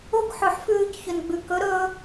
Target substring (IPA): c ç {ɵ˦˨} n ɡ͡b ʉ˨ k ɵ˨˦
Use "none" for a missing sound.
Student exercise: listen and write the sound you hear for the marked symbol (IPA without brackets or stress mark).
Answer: ɵ˨